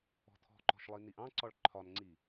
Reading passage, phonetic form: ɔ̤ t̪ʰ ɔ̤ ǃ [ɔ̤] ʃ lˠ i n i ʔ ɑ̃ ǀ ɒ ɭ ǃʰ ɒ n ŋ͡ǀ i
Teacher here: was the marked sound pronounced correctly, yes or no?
yes